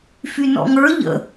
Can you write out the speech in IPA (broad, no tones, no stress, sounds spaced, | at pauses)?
f y n ɔ̰ ŋ ə˞ ʎ ə̰